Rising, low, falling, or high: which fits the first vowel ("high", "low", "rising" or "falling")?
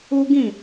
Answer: high